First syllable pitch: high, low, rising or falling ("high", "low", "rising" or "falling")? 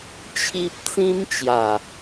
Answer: high